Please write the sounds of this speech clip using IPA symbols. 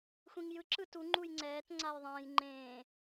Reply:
xʷ ĩ ŋ j ɯ ǁ ɯ t u ŋ͡ǃ u j ŋ͡ǀ ɛː t ŋ͡ǀ a j ðˤ ẽː j ŋ͡ǃ ẽː

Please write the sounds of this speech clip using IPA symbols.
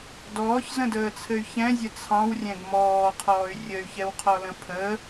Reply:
d ɔː ç z ə̃ d əː t͡sʰ ɘ y̯ ç ɛ̃ zʲ ə t͡sʰ ɑ̃ w rʲ ɛ̃ ɡ m ɔː qʰ ɔː y̯ rʲ ə y̯ ç ɛ w qʰ ɔ l ə̃ pʰ ə

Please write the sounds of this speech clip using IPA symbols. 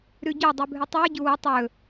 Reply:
ɾ ʉ ɟ o dˤ ʉ bʱ ɨ tˤ ɨː ɟ u w ɵ tˤ ɵ

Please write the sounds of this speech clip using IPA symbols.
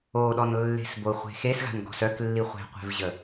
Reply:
o ɗ ɔ n lː e̤ s b o χʷ e̤ x e s ɣ a̤ n ɡ ɔ̤ s œ k lː i χʷ e̤ qʷ e̤ v ʑ ə

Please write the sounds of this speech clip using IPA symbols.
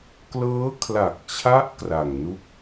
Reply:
k l ɤː˦˥ kʰ l a˨˩ k̚ t͡ɕʰ a˦˥ ʔ k r a˨˩ ŋ n u˥˩ k̚

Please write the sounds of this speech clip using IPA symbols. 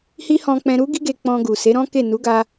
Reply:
h i˦ h ɔ̃˧ k͡p ɛ̃˧ ɾ u˦ ɡ i˦ ɡ e˧ k͡p ɔ̃˧ ɡ u˨ s e˨˦ ɾ ɔ̃˦ k e˦˨ n u˨˦ ɡ a˧

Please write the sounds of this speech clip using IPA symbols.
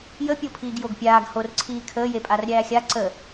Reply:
j ə pʲ o pʰ iː ɡ j o ɡ pʲ aː ɡ h o r ǀʰ iː kʰ əː j e pʼ a r ɾʲ æː xʲ a ǀ ə

